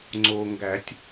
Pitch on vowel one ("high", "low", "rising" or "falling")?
low